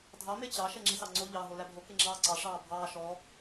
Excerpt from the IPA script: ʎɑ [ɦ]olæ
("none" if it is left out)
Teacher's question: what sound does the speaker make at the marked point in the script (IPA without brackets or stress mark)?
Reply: ɦ